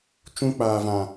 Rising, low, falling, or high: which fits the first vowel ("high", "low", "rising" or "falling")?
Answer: high